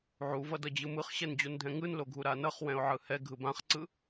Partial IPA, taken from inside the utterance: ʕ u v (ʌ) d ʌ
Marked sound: correct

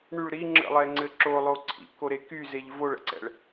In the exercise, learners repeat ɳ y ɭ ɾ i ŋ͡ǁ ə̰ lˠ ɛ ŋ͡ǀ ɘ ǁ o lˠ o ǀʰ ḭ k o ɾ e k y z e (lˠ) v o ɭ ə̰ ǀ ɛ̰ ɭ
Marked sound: incorrect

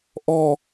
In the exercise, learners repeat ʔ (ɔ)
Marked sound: correct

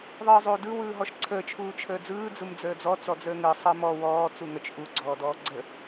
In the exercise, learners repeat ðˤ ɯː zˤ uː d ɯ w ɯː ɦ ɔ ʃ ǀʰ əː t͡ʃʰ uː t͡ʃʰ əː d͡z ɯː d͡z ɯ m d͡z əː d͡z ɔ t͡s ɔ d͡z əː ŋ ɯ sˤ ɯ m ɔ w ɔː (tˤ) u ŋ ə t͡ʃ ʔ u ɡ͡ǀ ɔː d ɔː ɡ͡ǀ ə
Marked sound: incorrect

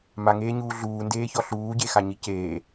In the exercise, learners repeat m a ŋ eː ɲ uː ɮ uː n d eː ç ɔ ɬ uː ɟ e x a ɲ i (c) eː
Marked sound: correct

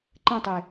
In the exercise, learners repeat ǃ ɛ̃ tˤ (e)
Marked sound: correct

